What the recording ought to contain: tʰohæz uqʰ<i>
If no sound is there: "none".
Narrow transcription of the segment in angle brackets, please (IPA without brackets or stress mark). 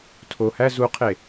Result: e